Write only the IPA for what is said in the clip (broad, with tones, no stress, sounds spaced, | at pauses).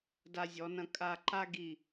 d a˧ zʲ ɔ˩˧ n ɐ̃˧ kʼ a˧ ǃ a˥ ɡ i˧˩